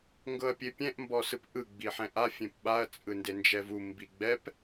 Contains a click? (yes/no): no